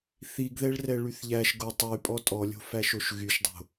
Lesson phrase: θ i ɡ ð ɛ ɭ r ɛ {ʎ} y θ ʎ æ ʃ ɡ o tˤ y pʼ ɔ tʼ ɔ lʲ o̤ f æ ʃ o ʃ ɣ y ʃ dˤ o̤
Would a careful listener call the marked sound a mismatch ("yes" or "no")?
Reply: yes